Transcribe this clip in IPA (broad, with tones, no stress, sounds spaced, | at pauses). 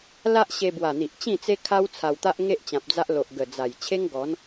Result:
l a˦ ʔ ɕ e˧ b w a˨˩ n̪ i˨ ʔ t͡ɕ ĩ˥˧ t͡s e˦ kʰ a˦ w t͡sʰ a˧ w t̪ a˦ ʔ ŋ e˦ ʔ t͡ɕ ã˨ p̚ d͡z a˦ ʔ l o˨ ʔ ɡ ə˨˩ d͡z a˨˩ j t͡ɕʰ e˦ ŋ ɡ ɔ˨˦ n